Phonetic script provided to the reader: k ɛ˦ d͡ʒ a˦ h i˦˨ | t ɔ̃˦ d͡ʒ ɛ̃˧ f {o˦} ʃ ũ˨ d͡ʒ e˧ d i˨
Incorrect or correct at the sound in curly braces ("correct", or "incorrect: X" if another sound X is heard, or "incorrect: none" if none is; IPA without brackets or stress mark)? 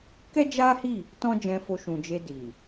incorrect: o˧